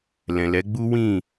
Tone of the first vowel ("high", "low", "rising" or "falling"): low